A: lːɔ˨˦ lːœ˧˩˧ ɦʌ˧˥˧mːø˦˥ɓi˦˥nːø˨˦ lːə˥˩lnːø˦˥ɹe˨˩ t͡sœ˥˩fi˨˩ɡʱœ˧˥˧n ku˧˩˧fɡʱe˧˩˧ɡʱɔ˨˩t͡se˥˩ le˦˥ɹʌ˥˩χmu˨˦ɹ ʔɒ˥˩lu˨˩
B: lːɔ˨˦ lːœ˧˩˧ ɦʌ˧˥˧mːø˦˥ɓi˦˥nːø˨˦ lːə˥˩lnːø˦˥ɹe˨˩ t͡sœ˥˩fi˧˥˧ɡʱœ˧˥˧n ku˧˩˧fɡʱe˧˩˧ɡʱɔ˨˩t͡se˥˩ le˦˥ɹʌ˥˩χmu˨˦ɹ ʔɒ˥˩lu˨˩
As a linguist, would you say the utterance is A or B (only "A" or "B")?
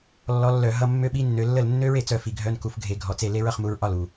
A